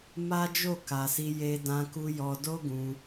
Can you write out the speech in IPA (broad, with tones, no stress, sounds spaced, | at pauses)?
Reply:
m a˦ d͡ʒ o˦˨ k a˨ s i˧ j e˧ d ã˧ k u˧ j ɔ˧ d o˦ ɡ ũ˧